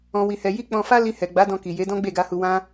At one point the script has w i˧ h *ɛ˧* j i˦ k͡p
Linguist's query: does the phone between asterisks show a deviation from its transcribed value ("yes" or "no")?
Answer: no